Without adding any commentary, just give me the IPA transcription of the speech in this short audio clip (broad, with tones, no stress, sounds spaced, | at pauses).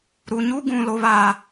ɾ u˨ ɲ u˦ ɡ ũ˨ l o˨ β aː˨